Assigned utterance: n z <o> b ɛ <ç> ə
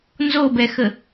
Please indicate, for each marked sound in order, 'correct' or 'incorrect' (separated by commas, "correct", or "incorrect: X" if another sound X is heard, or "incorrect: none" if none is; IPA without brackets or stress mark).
correct, incorrect: x